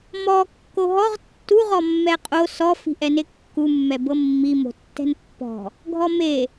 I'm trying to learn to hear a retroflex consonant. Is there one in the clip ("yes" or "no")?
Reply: no